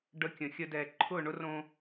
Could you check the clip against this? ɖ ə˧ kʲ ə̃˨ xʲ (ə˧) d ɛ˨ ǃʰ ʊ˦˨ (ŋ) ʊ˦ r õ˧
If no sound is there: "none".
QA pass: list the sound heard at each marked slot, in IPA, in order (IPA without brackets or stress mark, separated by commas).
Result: ə˧, ɳ